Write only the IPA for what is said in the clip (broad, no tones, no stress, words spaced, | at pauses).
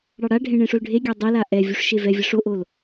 ɽɑɽaɖʱẽ ɳẽʂolɖʱeɡʲa dˤela ʔɛ vʲuʂʃevɛvʲʌ ʂoʔol